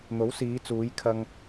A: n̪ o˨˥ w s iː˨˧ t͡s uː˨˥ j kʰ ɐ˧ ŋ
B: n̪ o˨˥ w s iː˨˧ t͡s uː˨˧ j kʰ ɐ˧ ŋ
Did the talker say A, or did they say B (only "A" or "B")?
B